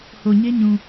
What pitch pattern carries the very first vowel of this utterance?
low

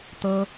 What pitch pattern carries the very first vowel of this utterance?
high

